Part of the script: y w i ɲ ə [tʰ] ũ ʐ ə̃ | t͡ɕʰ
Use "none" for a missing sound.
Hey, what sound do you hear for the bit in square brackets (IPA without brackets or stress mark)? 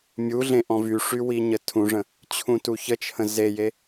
tʰ